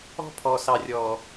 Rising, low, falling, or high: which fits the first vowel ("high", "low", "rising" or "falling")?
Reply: high